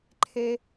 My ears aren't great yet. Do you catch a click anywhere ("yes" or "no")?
yes